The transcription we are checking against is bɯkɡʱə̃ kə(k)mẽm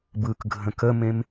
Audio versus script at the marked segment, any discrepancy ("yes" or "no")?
yes